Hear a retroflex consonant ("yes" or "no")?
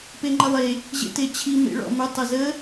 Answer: yes